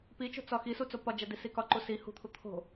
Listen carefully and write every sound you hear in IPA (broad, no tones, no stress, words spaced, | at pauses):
pit͡ʃo̤ t͡sɒxisu t͡sopɒd͡ʒæ disikɒǃu si hṳt̪ʰu t̪ʰo̤